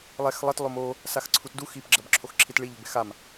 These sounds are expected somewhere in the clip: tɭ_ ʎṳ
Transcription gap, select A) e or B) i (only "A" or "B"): B